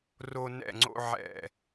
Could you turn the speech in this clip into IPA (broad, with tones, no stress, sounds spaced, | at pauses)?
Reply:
r o˦ n ɛ̰˦˨ ŋ͡ǀ o̰˦ ʕ ɛ̰˦˨